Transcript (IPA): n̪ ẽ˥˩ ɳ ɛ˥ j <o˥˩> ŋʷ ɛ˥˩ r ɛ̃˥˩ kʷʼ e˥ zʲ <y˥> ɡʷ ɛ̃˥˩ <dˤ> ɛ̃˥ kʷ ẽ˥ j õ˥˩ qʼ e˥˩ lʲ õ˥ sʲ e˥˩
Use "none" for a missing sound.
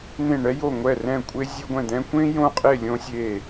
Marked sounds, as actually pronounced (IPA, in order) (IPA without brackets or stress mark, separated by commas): o˥˩, e˥, d̪